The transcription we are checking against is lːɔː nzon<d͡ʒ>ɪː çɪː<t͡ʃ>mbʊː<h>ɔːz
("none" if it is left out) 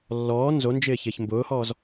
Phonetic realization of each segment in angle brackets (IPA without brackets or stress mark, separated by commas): d͡ʒ, ç, h